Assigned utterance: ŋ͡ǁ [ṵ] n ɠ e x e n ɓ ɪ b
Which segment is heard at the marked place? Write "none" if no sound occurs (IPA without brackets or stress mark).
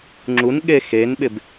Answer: u